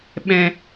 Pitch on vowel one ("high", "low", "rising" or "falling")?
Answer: low